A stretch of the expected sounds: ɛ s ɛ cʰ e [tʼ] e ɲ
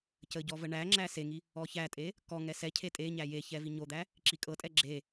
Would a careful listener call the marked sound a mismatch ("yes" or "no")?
no